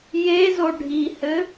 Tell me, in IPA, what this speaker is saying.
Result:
j e z o ɖʱ i h ɘ

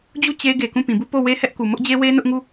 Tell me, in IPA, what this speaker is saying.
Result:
d͡ʑ u˦˨ t͡ɕ e˦ ɡ e˨ k ũ˦˨ p ĩ˨ b u˦˨ p o˦˨ w e˦ h ɛ˦ ʔ k u˨ m ʊ˦ ʔ d͡ʑ e˦ w e˦ n ʊ˦ ʔ ŋ u˦˨

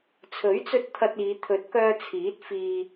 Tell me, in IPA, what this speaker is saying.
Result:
t͡sʰ ɵ˨˥ ɥ t͡s ɵ˧ t̚ t̪ʰ ɐ˧ t̚ iː˨˧ t̪ʰ ɵ˨˥ t̚ k œː˧ t͡sʰ iː˨˥ t̚ f iː˨

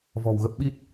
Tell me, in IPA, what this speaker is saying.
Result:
v ɔ̤˨˩ w ɣ ə˦˥ p̚ ɓ i˦˥ t̚

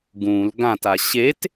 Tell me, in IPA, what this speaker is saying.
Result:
ɡ ũ l ɡ ã t a ɕ e t

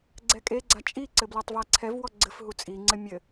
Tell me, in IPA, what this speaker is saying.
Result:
ɡ͡ǀ ɛ kʼ e ɡ͡ǀ a t͡ʃʼ i ǀ ɘ b l ɔ tˤ v a ǀʰ ɛ v w ɔ ɡ͡ǀ ɘ f ɦ u t͡sʼ i ŋ͡ǀ ɘ mʲ ɘ

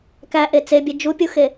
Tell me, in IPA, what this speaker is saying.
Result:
k æ ʔ e t͡s e bʲ e d͡ʒ u pʲ u x e

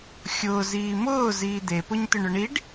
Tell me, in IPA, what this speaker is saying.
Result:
xʲ ʊː z iː m ʊː z iː d̪ e p ʊ ɲ t̪ ʏ ɳ ʏ ɳ i ɖ

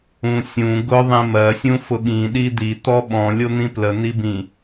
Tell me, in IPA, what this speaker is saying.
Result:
ũ sʲ ũ ɡ ʊ ðˤ ĩ m ɜ sʲ ũ f ʊ ɠ ĩ ɗ i d̪ i t̪ ɔ ɓ ɔ̃ lʲ o n̪ ĩ p l ə n̪ i b ĩ

